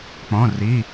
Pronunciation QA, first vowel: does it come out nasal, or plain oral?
nasal